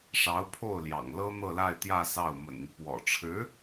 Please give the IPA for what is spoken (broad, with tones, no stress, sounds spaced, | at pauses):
ʂ ɑ˧˥ ʊ̯ pʰ o˥˩ ʊ̯ l j ɑ̰˨˩ ŋ l ɤ˥ n̪ ɤ˥˧ l a˥˧ ɪ̯ t̪ j ä˥˧ s ɑ˥˩ ʊ̯ m ə̰˨˩ n n̪ y˦ p w ɔ̰˨˩ ʈ͡ʂʰ ɻ̩˧˥